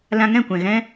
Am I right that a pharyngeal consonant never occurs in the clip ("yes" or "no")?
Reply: yes